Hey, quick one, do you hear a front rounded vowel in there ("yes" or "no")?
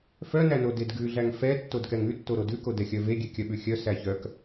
yes